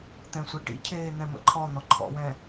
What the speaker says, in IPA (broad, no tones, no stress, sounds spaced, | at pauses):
t̪ ɛ̃ sʷ e ʈ ḭ cʰ eː n̪ ɛ̃ m ə̰ ǃʰ ɔ n̪ ɔ ǃʰ ɔ̰ w ɛ̃